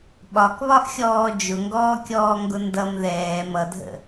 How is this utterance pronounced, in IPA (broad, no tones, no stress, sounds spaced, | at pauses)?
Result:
ɓ ɒ k β ɒ ʔ xʲ ɔː d͡ʒ ʊ ŋ ɡ ɔː kʲ ɔː ŋ ɡ ʊ n d ʌ m ð ɛː m ʌ dʱ ə̰